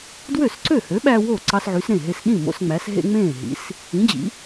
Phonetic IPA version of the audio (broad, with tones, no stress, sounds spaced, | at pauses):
d w ø˥˩ s ǀ ø˥˩ h ø˨˥ ɓ æ˦ w o˥˩ ǀ ɑ˦ s ʕ y˨˥ s ɾ ẽ˥˩ ɦ e˦ s ɗ ĩ˥˩ m o̰˦ s ŋ͡m æ˨˥ s ɦ ḛ˦ ŋ͡m ẽː˥˩ ɦ ḭ˨˥ s | ĩ˨˥ d͡ʑ ḭ˨˥